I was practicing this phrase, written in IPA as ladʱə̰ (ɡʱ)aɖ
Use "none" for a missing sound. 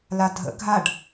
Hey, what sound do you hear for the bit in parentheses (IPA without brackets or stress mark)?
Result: ɡʱ